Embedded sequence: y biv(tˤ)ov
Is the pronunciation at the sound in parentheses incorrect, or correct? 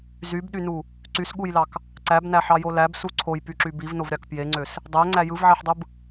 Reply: incorrect